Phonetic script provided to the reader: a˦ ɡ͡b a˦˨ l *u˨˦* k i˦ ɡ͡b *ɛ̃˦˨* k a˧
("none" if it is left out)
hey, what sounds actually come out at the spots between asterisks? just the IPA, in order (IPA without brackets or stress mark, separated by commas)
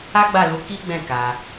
u˨˦, ɛ̃˦˨